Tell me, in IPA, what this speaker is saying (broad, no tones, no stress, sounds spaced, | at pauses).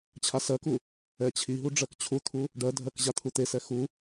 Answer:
t͡ɕʰ a s ɜ k u | ɛ t͡ɕʰ i ɦ u ɖ͡ʐ ɜ k t͡ɕʰ u t̪ʰ u | ɖ ɜ dʱ ɜ k ʑ a t̪ʰ u t̪ e s ɛ x u